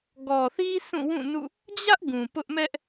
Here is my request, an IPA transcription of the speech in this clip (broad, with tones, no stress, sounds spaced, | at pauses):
ɡ ɔ˨ θ i˦ sʰ ũ˦˨ w ũ˦˨ n ṵ˦˨ | d͡ʑ ä˦ ʔ ɡ ũ˨ p ʊ˦ ʔ m ɛ˦ ʔ